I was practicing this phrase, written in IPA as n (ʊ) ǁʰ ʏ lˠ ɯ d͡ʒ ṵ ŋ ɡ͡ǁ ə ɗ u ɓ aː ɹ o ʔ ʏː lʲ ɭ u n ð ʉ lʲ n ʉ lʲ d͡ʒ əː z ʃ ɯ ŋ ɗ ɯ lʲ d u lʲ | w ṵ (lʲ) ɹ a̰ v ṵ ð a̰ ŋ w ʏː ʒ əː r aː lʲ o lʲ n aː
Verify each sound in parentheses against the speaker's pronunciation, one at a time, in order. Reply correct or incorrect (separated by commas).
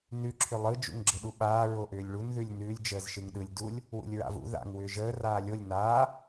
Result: incorrect, correct